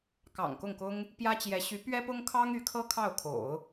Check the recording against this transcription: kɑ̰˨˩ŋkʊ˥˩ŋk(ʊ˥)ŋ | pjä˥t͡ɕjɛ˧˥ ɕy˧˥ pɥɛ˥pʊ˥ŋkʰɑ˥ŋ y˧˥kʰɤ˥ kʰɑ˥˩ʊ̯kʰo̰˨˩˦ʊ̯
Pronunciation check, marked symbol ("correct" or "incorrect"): correct